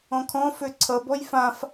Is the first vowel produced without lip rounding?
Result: no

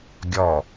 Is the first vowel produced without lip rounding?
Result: no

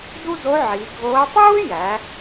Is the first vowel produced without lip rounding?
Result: no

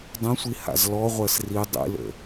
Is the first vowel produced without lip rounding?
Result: yes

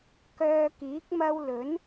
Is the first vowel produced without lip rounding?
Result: no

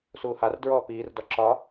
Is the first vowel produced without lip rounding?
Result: no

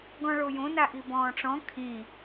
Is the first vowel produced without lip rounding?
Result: no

